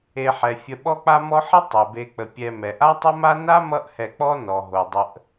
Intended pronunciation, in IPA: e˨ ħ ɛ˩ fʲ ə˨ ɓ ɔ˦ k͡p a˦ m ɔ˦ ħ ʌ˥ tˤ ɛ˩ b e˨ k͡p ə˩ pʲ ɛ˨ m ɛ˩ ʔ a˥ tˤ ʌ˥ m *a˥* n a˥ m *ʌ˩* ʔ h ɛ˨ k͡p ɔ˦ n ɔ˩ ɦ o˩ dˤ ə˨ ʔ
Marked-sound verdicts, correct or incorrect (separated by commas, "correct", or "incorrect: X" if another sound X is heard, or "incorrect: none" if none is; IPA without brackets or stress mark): correct, incorrect: ʌ˦